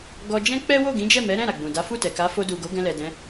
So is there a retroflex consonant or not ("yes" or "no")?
no